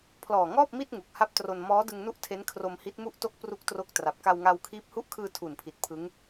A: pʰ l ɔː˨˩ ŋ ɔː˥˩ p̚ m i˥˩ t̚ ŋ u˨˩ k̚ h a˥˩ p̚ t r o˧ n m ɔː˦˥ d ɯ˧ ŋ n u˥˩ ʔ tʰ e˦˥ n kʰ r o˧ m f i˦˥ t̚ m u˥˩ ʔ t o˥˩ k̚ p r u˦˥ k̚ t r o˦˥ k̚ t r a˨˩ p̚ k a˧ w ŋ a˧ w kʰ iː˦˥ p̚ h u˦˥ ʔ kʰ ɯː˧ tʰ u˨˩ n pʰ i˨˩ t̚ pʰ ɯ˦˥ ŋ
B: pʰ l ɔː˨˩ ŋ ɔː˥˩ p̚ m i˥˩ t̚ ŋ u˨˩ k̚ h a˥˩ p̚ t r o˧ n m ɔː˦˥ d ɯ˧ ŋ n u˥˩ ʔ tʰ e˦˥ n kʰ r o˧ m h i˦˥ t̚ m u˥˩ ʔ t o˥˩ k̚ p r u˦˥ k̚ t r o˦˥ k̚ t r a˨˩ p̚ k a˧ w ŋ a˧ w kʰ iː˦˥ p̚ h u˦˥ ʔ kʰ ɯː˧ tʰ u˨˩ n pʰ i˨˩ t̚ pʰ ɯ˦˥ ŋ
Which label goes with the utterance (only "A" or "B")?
B